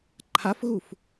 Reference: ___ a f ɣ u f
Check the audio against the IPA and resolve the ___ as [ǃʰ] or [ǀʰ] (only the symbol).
ǃʰ